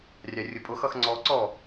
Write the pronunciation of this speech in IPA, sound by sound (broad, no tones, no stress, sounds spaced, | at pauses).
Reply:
rʲ ɑ rʲ ʊ pʼ ʊ x ʌ x ŋ͡ǀ ɔ ǀ ɔ